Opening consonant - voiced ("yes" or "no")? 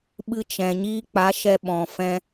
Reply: yes